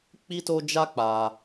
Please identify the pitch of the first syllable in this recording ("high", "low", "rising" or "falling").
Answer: high